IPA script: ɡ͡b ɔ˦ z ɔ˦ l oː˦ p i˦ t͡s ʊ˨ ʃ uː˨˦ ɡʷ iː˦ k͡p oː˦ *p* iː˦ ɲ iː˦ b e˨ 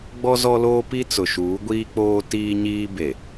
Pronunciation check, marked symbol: incorrect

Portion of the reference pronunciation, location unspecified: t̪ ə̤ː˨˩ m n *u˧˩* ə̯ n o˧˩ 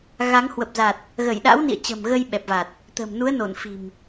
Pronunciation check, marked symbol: incorrect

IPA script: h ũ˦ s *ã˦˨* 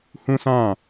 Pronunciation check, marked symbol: correct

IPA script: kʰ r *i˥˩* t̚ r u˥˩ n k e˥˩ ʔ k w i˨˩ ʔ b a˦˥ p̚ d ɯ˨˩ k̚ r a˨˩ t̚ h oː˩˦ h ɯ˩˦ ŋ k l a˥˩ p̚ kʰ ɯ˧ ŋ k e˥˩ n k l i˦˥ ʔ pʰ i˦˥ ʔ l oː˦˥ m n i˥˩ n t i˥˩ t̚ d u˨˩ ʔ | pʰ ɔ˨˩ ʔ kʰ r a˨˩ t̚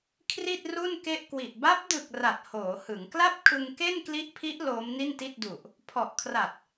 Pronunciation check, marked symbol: correct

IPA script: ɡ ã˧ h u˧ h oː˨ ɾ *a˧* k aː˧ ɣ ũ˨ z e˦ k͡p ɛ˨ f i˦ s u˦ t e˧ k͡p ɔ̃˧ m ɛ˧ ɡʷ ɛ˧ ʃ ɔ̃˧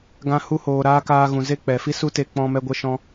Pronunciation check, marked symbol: incorrect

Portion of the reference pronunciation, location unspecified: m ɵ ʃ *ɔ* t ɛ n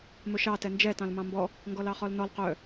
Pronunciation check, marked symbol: incorrect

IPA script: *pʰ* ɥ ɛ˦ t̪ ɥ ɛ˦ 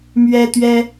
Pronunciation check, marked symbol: incorrect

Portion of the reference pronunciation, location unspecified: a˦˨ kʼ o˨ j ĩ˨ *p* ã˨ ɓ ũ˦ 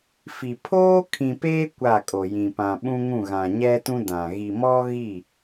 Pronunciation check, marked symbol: correct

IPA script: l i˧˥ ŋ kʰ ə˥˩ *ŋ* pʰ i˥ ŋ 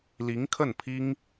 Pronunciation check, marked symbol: incorrect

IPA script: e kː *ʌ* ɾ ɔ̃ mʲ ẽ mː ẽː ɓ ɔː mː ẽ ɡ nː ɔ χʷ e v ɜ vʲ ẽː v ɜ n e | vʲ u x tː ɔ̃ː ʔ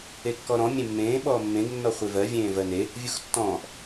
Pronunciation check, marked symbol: incorrect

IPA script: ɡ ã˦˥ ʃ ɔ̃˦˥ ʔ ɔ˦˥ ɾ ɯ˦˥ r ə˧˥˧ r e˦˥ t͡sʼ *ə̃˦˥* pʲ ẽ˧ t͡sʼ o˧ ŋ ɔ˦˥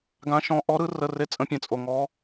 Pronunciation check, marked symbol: correct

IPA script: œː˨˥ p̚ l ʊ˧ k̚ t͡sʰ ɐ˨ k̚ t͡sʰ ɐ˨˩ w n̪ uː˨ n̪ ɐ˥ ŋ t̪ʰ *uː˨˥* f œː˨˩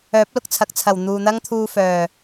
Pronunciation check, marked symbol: incorrect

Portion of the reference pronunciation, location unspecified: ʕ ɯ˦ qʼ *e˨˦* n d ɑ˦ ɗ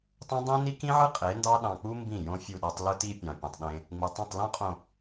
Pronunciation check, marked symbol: correct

